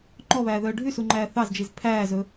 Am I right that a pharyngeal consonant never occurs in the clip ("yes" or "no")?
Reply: yes